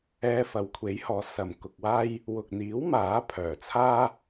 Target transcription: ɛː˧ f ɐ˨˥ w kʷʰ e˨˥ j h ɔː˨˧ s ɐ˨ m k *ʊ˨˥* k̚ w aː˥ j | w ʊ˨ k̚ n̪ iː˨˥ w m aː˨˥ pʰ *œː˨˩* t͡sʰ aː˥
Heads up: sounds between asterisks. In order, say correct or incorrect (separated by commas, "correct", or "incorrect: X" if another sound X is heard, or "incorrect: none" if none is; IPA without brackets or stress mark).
incorrect: ʊ˧, correct